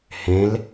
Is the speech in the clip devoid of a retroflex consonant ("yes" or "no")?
yes